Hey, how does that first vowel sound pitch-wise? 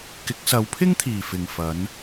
rising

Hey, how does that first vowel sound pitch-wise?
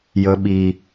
low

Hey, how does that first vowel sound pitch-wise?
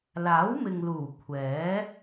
rising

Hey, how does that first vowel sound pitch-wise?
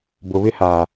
low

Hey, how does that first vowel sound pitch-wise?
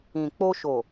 low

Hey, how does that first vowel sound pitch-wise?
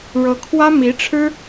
rising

